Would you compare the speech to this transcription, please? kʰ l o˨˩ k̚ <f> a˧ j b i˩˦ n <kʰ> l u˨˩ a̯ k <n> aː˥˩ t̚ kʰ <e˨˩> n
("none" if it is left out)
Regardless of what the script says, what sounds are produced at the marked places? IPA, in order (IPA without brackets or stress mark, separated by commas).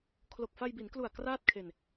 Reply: f, k, r, e˧